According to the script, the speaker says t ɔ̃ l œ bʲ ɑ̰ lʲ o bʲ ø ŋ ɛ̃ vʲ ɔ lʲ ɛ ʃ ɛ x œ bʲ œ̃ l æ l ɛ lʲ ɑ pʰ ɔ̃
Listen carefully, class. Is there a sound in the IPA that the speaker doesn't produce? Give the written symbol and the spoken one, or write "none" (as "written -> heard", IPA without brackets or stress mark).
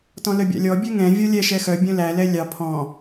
o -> ɔ